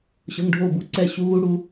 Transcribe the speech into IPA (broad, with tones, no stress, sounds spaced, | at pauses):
ɕ ɤ˩˧˩ ŋ ɖʱ o˥˩ b u˦˥ ǀ ɛ˥˩ ɕ u˦˥ ɣ u˦˥ ɽ u˩˧